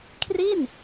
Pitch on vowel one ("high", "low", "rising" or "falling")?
falling